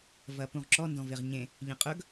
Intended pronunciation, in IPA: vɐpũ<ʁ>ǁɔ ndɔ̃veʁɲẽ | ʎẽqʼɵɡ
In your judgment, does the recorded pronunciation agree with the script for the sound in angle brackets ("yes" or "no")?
yes